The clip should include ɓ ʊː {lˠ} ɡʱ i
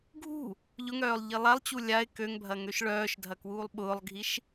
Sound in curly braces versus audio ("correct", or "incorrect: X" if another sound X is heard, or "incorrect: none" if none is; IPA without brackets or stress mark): correct